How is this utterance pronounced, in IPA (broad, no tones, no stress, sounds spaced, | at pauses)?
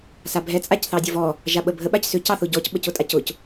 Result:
s a bʱ ɛ t͡sʼ a c θ ɑ dʲ ə v ɔ | ʒ a ɓ ə bʱ ə ɓ a c s ʏ c ɑ θ ʊ ɟ ɔ c ɓ ə c ʊ tʼ a c ʊ c